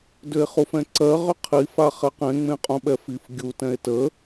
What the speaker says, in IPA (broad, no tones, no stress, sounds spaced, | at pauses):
d ʏ e̯ χ u f ɛ̃ ǀ ɜ ʁ ʏ qʰ i f a χ ɛ q ẽ ŋ͡m ẽ qʼ ũ ɓ ɛ f i f ɡʲ u t ɛ̃ e̯ t ə